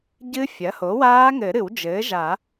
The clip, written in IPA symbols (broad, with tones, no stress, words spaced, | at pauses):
ɟɨ˦˥fʲɐ˩˥ho˩˥ waː˦˥ŋɘ˨˩˦ɾɨ˨˩˦w d͡ʒɘː˩˥ʒa˨˩˦